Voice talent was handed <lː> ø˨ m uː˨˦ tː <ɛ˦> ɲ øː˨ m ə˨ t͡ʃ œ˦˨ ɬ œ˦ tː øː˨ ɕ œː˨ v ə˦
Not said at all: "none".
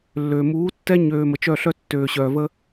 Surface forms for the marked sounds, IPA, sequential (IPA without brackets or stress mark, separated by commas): lː, ɛ˦